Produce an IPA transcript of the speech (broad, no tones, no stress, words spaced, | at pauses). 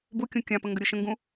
bukʲũ kʲãpə ŋɡəɾʲɯʃə̃ŋɡũ